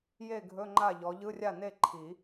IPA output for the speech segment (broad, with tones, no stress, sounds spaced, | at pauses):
j e˥˩ ɡʱ ɵ˧˥˧ ŋ͡ǃ a˥˩ ʎ ɔ˨˦ ʎ ɯ˧˥˧ rʲ a˥˩ n e˥˩ ǃʰ i˨˩˦